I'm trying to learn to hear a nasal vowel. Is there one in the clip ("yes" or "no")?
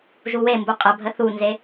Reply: no